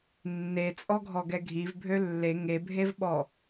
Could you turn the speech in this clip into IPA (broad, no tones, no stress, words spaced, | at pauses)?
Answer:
nːet͡sʼɔɡʱɔɡɛ ɡʱivbʱø lːe ŋebʱevɓɔ